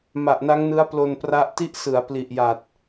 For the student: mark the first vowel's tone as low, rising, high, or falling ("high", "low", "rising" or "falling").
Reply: low